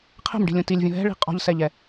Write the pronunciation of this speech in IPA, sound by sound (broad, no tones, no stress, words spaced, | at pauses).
qʰɛ̤mɖi̤lʲũ tilʲvʲõ ɦɛ̤ɭi̤ qʼɔ̤ʎsɛʎɛ